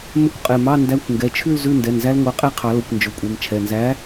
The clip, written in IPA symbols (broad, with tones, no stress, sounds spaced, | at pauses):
m ɵ˦˥ kʷ qʼ ɛ˩˧˩ m ɑ˧˥˧ n d æ˧˥˧ kʷ ŋ ɡ ɛ˩˧˩ t͡ʃʰ ʉ˥˧ l z ʉ˧˥˧ n d ɛ˩˧˩ n z æ˦˥ l ŋʷ ɑ˨˥ qʼ æ˥˧ qʰ ɑ˨˩˦ l o˩˧˩ kʷ n d͡ʒ ɵ˩˧˩ kʷʼ ɛ˩˧˩ m t͡ʃʰ ɛ˩˧˩ n z æ˨˥